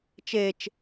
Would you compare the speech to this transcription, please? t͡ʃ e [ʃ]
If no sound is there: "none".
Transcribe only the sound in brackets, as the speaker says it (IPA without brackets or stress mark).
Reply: t͡ʃ